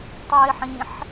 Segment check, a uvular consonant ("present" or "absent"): absent